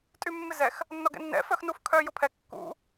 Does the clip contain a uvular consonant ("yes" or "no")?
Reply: no